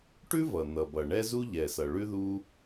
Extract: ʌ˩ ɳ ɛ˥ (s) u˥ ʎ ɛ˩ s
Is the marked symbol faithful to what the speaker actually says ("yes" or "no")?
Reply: no